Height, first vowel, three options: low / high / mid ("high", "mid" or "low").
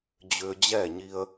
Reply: high